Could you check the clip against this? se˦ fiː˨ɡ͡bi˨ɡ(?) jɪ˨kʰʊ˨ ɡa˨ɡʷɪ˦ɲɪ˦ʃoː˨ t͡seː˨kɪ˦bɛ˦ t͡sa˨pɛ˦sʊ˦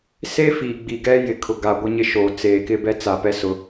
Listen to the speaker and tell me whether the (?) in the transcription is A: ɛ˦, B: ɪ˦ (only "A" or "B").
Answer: A